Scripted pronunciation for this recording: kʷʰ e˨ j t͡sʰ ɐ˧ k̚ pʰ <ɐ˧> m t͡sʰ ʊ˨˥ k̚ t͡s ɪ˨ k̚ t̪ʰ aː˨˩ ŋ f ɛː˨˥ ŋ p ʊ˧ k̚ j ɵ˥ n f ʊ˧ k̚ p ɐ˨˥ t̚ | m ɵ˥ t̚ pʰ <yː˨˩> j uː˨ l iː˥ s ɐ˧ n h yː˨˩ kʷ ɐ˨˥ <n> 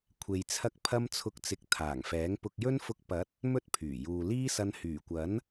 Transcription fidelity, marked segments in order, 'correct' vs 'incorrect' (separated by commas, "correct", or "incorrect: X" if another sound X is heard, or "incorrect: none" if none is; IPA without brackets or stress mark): correct, correct, correct